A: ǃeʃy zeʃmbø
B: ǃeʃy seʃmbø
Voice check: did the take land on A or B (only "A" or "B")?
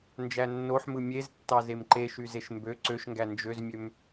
A